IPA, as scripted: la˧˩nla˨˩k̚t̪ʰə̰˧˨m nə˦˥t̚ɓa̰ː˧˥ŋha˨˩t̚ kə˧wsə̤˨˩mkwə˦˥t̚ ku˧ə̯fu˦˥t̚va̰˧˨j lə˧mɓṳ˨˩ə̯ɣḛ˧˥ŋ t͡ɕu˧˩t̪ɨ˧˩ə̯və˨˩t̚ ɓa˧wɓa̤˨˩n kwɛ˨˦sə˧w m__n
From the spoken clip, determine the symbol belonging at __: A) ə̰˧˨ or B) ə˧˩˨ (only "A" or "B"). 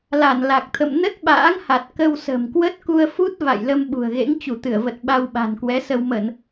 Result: B